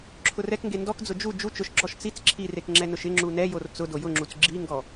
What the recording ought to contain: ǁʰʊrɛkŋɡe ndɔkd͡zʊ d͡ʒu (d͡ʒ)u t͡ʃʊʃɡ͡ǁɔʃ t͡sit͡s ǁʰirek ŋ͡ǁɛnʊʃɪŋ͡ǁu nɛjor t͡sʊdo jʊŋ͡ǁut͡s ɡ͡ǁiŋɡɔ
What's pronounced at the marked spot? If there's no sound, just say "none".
d͡ʒ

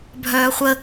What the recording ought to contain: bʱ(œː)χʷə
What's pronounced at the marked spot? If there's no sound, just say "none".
œː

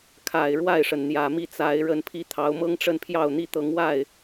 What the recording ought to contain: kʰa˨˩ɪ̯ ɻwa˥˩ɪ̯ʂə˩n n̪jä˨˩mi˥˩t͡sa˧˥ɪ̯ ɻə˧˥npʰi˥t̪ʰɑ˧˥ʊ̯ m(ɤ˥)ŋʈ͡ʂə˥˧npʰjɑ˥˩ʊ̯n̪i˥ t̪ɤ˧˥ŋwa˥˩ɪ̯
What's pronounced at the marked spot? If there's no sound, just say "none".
ɤ˥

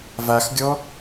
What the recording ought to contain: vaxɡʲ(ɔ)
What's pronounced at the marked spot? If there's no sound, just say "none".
ɔ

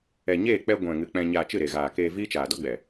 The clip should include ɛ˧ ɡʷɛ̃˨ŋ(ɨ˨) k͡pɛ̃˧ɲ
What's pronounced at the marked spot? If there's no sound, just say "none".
ɨ˨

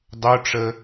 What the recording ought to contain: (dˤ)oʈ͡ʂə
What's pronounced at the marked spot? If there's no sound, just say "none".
dˤ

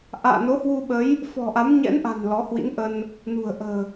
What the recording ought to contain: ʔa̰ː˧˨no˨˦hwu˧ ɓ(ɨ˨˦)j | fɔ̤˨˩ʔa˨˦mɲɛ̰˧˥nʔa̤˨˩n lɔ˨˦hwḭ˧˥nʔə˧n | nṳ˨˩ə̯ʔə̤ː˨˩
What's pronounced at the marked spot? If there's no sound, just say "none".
ə˨˦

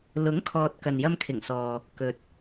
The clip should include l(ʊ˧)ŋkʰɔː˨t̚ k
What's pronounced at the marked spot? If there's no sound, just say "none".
ʊ˨˥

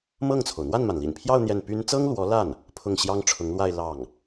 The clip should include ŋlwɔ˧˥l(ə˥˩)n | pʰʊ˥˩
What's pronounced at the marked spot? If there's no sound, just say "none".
a˥˩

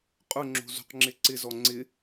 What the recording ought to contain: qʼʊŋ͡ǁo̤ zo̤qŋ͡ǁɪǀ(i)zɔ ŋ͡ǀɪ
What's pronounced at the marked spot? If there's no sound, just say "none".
ɪ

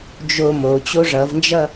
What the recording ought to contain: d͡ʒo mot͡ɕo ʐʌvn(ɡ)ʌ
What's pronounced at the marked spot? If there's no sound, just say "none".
d͡ʒ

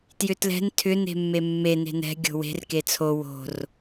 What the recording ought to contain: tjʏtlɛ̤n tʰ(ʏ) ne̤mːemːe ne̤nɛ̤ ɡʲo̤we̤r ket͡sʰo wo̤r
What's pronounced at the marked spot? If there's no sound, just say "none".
ʏ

